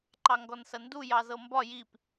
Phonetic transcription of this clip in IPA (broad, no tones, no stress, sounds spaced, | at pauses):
ǃ ɑ ŋ ɡ ɔ n s ɐ n d u j ɑ z ɤ m b ɒ j i p